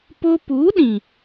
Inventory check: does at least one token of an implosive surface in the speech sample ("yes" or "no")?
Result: yes